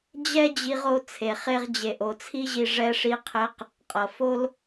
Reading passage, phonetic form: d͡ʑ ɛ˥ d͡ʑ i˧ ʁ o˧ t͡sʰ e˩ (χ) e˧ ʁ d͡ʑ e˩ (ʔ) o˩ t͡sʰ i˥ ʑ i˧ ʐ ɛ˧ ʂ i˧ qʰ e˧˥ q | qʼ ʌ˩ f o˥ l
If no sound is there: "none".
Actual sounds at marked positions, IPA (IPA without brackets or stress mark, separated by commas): χ, ʔ